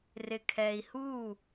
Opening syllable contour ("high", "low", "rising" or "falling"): low